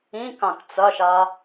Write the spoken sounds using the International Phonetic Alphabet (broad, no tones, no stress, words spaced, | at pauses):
ĩkãk t͡sɐʃa